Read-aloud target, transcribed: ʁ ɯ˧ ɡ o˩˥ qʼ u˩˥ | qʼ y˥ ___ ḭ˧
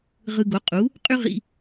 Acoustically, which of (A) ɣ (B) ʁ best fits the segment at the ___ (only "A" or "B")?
B